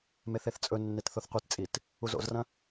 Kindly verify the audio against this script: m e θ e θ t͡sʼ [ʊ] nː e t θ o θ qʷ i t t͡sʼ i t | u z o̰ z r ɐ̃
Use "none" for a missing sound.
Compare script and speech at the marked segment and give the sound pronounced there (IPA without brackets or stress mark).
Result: ɵ